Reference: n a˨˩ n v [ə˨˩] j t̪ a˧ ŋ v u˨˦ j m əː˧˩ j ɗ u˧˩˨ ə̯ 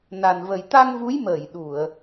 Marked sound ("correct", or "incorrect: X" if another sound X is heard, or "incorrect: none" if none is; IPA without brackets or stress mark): correct